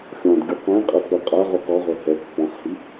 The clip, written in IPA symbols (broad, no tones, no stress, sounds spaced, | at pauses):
xʲ ɔ̃ d ɡʲ u q ẽ qʼ ə f ə qʼ a ʁ u q ɔ ʁ ø h ɛ pː ɔ̃ χ h i